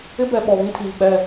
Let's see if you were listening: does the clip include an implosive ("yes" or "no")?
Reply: yes